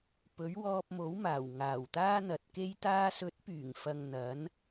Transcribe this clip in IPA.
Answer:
p ɵ˨˥ ɥ w ɔː˧ p̚ m o˨˥ w m aː˨˩ w ŋ aː˨˩ w t̪ aː˥ n̪ ɐ˨ t̚ k e˥ j t̪ aː˧ s ɵ˨˥ t̚ p yː˨˩ ŋ f ɐ˨ ŋ n̪ ɐ˨˥ n

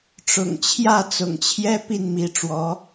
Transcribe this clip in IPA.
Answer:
ʈ͡ʂ ʊ̰˨˩ ŋ t͡ɕʰ j ä˥˩ t͡s ʊ̰˨˩ ŋ t͡ɕʰ j ɛ˥ p i˥˩ n m i˧˥ ʈ͡ʂ w ɔ˧˥

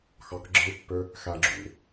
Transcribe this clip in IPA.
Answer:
x ɑ k ɡ͡ǁ ɯ pː ø | x æ ɡ͡ǁ ṵ

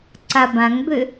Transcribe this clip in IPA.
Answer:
ǀ a b ã ŋ b ø

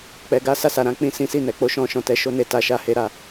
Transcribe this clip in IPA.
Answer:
k͡p ɛ˨ ɡ a˨˦ s a˦˨ s a˨ ɾ ã˨˦ k͡p ĩ˦˨ s ĩ˨˦ s i˦˨ n ɛ˨ k͡p o˧ ʃ ɔ̃˧ ʃ ɔ̃˨ t ɛ˨ ʃ o˧ n e˨ t a˨ ʃ a˨˦ h e˧ ɾ a˨

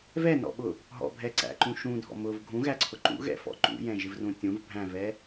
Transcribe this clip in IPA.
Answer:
v ɛ n ɔ̰ ɓ ʊ | ɦ ɔ̰ bʱ ɛ ǀ æ̰ ǃ ũ ʃ ũ dʱ ɔ̰ m ʊ v ɡʱ ũ ɣ æ ǀʰ ʊ ǃ ṵ ɣ ɛ̰ f ɔ̰ ǃ ṵ j ɛ̃ ʒ ɪ v r ũ tʲ ũ v bʱ æ̃ v ɛ

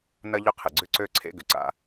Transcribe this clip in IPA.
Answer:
n ɐ˥ ʎ ʏ˥ qʰ ɪ˩ ɡ͡ǀ ʏ˥ ǀ ø˥ ǀʰ ḛ˥ ɡ ʏ˩ ǀ a̰˥

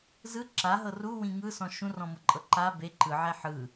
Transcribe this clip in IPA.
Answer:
z ɯ ǁ a ɦ ɤ r u w ĩ ŋ ɯ s ɔ̃ ʃ ũ r ɔ̃ m ɤ ǃʼ ɤ ǃ a b e ǃ ɯ ʕ ɛ ħ ɯ

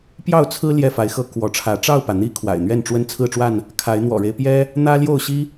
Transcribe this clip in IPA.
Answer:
p j ɑ˥˨ ʊ̯ t͡sʰ ɹ̩˦ l j ɛ˥˨ f a˨˦ ɪ̯ x ɤ˦ k w ɔ˨˦ ʈ͡ʂʰ ä˨˦ ʈ͡ʂ ɑ˥˨ ʊ̯ p ä˩ n̪ i˦ kʰ w a̰˨˩ ɪ̯ n̪ ɥ ɛ˥˨ n ʈ͡ʂ w ə˦ n t͡sʰ ɹ̩˥˨ ʈ͡ʂ w a˥˨ n | kʰ a˨˦ ɪ̯ n̪ w ɔ̰˨˩ ɻ e˦ ɪ̯ p j ɛ˦ | n̪ ä˦ l j o˥˨ ʊ̯ ɕ i˦

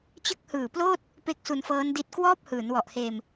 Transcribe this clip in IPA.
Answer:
t͡ɕ ɯ˦˥ k̚ h ɯː˨˩ p l oː˥˩ t̚ | p e˦˥ k̚ s u˧ n f ɤː˦˥ n d i˦˥ t̚ k w ɔː˥˩ p̚ h ɯː˩˦ n w ɔ˨˩ ʔ h eː˧ m

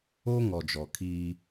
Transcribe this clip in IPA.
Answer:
o˦ ŋ ɔ˨ d͡ʒ ɔ˨ kʰ iː˦

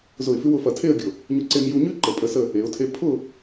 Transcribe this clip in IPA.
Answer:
z ʊ˧˩ ɪ̯ f ʉ˧ w ʊ˩˧ f ɐ˧˩ tʰ e˥˧ ə̯ ɡʲ ʊ˧˩ | ɲ ʊ˧ ǀ e˧ m j u˧ ɲ ʉ˥ ǃ ə˧˩ pʼ ə˧ s ə˥˧ | e˩˧ ʊ̯ tʰ e˧ pʰ ʊ˥˧

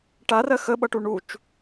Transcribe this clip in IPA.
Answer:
ʈ a r ɜ x ə ɓ ʌ ʈ u ɳ u t͡ʃ

